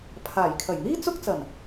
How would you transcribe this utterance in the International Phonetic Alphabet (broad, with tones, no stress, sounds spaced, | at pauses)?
pʰ aː˨˩ j kʰ ɐ˨˩ j n̪ iː˥ t͡s ʊ˥ k̚ t͡s ɐ˨˩ n